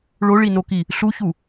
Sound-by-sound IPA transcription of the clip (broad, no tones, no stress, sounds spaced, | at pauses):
ɭ o ɭ i n o k i | ɬ u ç u